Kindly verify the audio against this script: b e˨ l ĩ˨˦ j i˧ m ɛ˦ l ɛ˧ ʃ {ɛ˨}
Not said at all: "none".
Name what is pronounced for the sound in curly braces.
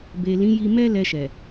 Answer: ɛ˨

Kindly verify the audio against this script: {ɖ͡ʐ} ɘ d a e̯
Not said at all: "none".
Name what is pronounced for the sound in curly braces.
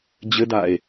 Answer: d͡ʑ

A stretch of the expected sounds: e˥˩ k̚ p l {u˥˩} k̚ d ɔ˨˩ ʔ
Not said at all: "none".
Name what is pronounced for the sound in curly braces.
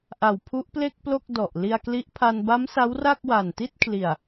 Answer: o˥˩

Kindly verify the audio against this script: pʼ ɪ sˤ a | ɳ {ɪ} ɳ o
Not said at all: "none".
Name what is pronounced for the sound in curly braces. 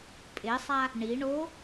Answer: i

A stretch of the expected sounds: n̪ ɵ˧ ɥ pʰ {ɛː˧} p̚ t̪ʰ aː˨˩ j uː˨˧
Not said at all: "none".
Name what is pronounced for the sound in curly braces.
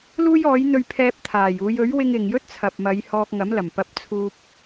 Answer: ɛː˧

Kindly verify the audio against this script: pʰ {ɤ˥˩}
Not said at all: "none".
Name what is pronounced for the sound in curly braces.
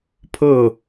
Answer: ɤ˥˩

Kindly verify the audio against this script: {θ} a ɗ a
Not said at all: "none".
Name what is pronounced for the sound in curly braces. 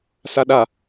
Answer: s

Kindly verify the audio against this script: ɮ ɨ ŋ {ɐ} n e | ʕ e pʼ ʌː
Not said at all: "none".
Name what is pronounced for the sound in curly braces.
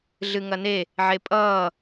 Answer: ɐ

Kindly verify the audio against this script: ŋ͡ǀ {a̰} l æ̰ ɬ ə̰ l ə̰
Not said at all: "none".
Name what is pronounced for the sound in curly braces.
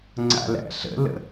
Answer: a̰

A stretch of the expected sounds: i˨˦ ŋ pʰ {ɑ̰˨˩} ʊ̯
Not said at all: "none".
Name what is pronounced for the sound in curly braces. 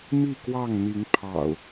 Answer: ɑ̰˨˩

